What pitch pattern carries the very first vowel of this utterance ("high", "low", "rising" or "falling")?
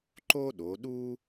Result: high